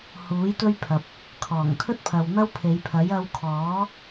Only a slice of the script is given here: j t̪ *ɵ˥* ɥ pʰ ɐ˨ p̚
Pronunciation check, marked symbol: correct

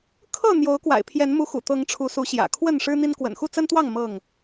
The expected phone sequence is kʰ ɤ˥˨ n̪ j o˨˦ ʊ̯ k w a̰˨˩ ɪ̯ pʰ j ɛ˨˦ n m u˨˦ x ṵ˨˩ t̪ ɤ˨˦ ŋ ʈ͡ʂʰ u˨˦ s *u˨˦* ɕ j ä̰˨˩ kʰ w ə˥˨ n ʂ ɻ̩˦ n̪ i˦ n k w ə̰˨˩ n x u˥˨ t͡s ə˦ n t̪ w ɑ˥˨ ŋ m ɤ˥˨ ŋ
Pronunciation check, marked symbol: correct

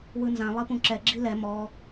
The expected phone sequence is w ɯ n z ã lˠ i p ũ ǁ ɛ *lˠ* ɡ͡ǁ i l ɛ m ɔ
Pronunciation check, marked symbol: incorrect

